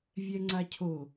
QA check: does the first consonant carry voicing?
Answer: yes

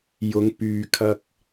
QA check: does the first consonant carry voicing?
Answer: yes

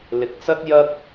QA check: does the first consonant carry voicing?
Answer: yes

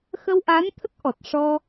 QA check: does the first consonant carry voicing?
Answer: no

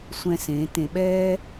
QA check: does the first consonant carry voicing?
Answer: no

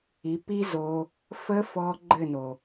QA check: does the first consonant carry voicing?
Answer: no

